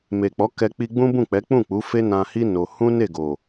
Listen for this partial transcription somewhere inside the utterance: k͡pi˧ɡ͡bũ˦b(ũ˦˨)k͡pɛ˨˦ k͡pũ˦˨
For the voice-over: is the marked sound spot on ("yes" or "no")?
yes